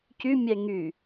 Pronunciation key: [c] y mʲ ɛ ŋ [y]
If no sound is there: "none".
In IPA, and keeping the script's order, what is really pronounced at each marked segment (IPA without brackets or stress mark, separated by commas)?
c, y